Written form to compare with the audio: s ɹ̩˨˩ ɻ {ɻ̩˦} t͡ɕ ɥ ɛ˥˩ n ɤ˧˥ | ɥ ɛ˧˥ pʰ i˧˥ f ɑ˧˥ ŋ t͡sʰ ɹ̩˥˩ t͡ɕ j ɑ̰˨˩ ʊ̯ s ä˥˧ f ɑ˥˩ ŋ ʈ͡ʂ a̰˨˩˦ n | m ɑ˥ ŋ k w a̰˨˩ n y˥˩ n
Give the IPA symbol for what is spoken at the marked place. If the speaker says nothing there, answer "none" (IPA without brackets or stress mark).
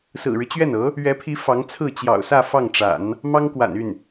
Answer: ɻ̩˦